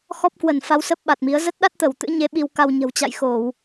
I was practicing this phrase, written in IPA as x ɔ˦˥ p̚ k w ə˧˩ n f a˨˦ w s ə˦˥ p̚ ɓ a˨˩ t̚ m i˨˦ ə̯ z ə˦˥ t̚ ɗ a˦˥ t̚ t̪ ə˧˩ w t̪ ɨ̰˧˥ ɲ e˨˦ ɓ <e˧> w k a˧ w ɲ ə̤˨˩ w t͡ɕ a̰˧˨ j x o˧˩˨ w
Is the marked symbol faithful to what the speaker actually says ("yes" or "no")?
no